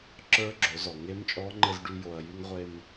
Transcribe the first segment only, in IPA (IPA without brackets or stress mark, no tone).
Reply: ǁ